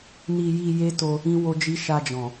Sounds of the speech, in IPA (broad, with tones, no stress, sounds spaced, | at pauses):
n i˧ j i˧ j e˦ t o˧ | ĩ˦ w o˦ d͡ʒ i˦ ʃ a˧ d͡ʒ ɔ̃˨